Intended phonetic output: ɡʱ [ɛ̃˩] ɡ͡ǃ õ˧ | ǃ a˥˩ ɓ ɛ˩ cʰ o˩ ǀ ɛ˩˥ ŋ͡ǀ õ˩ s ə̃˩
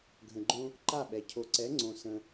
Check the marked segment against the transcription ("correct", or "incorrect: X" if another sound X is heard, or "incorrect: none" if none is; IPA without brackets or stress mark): incorrect: ə̃˩